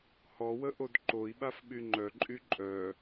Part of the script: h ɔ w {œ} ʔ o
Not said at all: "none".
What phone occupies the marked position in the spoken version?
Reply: ə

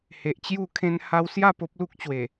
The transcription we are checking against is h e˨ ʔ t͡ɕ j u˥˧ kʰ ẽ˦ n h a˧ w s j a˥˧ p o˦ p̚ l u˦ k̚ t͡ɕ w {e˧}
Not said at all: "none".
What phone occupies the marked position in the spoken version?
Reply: e˨˩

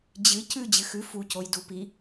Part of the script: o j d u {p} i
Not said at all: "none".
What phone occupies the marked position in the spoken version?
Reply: p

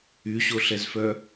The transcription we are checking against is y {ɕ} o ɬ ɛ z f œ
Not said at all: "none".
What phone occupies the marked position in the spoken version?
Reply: ɕ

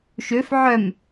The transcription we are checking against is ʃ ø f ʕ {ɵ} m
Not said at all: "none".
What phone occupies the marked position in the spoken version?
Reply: œ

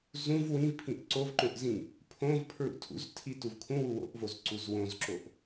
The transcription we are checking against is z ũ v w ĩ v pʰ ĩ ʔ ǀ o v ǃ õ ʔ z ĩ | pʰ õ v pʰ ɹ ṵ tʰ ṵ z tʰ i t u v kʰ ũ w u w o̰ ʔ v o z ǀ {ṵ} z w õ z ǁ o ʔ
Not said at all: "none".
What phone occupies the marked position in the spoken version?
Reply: u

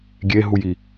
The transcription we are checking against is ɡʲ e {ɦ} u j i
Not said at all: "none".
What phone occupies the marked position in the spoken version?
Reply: ɦ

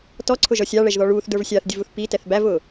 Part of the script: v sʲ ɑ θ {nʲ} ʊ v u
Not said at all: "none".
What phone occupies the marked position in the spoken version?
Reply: dʲ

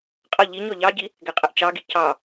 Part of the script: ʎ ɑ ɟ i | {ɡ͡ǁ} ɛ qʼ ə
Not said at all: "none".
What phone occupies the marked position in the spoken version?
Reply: ɡ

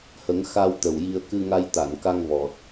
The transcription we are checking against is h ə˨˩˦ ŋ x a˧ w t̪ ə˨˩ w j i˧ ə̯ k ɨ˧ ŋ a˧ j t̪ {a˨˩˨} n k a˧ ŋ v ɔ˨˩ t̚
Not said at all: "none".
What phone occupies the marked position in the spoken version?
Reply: a˨˩˨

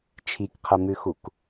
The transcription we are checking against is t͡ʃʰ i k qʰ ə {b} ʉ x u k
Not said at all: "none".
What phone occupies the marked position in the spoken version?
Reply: m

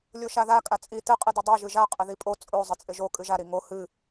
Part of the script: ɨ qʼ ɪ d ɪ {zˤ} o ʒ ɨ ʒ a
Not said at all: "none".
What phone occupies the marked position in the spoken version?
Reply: dˤ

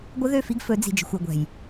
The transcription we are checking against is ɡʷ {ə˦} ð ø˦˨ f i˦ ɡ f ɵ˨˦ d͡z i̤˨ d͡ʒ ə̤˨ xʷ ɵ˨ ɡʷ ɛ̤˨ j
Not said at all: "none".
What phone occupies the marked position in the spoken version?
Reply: ə˦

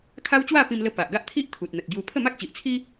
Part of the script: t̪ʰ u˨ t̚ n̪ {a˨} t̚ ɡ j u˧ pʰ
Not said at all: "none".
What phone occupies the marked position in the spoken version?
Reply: ə˨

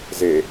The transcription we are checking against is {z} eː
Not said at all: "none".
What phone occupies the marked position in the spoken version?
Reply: z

